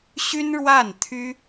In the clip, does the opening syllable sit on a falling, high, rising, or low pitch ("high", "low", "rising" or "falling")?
high